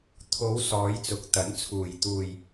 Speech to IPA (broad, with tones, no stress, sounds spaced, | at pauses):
t̪ʰ o˨˧ w s ɔː˨˧ j t͡s ʊ˨˥ k̚ t̪ ɐ˨˥ n t͡sʰ uː˨ j t̪ uː˨ j